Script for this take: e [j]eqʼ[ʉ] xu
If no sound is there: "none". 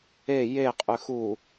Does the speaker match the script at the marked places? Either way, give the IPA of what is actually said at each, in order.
j, ʉ

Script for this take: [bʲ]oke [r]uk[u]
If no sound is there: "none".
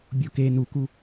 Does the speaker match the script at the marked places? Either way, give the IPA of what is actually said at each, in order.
bʲ, n, u

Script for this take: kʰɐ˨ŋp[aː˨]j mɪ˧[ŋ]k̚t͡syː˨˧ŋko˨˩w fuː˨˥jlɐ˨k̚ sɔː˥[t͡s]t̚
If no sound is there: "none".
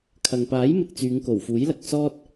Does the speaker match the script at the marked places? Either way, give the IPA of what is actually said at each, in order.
aː˨˥, none, none

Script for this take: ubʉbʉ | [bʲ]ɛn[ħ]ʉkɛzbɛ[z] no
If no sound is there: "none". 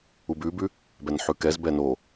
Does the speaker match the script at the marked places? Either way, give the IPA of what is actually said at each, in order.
b, ħ, none

